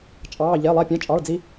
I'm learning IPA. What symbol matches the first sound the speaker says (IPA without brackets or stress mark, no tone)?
t͡ʃʼ